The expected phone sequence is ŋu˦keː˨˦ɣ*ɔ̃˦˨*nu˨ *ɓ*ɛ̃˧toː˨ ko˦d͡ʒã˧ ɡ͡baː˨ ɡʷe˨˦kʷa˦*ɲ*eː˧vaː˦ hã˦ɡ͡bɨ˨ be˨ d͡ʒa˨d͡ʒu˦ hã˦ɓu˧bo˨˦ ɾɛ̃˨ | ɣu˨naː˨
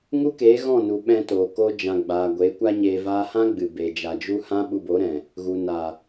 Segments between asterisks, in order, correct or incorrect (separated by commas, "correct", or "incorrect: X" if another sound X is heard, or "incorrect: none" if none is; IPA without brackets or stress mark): correct, correct, correct